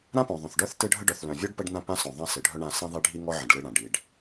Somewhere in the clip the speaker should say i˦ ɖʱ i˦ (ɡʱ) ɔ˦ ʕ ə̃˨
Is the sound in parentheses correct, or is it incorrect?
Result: incorrect